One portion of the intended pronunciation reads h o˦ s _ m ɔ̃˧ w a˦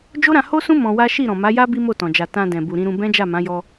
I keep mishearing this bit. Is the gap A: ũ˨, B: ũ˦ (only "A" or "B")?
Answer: B